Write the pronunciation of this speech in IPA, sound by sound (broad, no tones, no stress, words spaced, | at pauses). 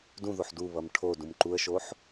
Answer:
dũðoħ duβʌm ʈʰo dũmǃuə̯ʃoħ